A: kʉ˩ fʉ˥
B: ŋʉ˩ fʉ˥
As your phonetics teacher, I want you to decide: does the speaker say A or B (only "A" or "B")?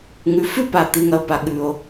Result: B